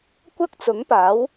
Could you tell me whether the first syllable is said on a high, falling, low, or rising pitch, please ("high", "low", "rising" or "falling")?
high